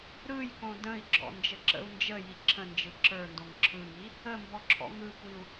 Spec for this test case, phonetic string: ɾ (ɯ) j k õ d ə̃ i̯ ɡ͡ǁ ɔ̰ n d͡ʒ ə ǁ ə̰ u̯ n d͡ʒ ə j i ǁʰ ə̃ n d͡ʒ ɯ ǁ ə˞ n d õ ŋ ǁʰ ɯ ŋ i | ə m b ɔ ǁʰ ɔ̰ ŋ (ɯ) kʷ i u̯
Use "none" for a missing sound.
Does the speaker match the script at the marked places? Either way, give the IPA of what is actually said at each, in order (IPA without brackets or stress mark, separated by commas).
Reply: ɯ, ɯ